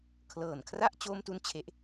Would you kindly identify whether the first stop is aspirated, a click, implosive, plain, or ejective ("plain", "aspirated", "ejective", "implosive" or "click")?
aspirated